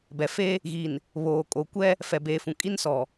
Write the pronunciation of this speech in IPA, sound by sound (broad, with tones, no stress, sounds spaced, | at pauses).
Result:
b ɛ˨ f e˦ | ɣ i˨ n | β oː˨ kʼ oː˨ kʷ ɛ˦ | f ɛ˨ b eː˨ f ũ˨ kʼ i˦ n s ɔ˨